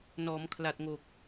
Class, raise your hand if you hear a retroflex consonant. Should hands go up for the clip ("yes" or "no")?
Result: no